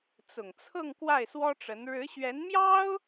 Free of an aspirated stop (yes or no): no